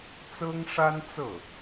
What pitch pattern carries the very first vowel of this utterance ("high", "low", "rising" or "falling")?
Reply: high